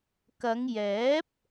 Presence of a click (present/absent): absent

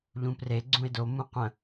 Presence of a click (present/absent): present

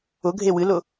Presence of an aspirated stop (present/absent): absent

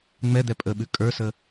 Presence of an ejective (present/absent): present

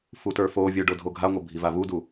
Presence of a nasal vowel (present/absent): absent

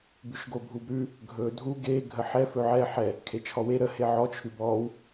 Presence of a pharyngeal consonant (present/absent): present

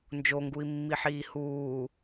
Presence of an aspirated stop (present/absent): absent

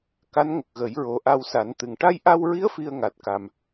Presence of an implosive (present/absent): absent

